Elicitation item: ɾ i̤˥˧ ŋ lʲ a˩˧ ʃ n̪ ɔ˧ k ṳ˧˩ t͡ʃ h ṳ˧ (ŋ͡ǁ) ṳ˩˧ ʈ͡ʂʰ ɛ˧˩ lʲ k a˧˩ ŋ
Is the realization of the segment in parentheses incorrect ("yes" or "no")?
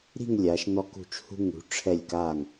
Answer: yes